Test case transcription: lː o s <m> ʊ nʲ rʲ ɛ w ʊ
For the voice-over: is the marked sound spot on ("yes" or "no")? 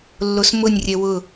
yes